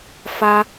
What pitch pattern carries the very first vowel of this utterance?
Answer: high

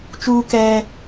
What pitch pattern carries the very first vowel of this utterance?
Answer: high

